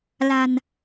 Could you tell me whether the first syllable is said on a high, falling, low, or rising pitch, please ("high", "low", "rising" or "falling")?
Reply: low